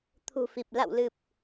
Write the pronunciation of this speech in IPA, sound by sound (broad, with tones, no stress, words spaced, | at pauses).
t̪ʰṳ˨˩fi˨˩p̚ la̰˧˨wlɨ˨˩p̚